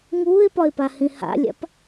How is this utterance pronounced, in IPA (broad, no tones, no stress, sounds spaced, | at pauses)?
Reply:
ŋ uː ɪ̯ p ɒ ɪ̯ p a h ĩ h a̰ lʲ a̰ p